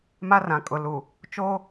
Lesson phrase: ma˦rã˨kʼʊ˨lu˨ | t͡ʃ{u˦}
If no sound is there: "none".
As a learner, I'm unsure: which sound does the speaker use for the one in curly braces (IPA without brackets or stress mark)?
o˦